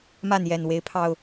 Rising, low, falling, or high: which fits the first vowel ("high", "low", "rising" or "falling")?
falling